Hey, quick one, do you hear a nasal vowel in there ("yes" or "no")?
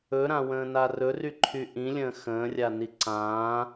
yes